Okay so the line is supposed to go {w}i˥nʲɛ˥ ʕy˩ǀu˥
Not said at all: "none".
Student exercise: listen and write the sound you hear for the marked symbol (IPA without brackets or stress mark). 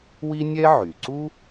w